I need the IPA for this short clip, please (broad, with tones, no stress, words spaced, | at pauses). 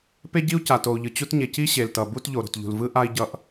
pe˥ɟi˥u̯ ca˩to˩u̯ʎɯ˩ t͡ɕu˥tɲe˩ ci˥ɕe˩ltʌ˩ bu˥t ʎo˩ɾo̤˩tʎṳ˩lvɯ˥ ʔa˥i̯ ɟʌ˥ʔ